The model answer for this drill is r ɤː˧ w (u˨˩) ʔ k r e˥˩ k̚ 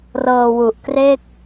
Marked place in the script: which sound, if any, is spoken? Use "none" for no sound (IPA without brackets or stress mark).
u˨˩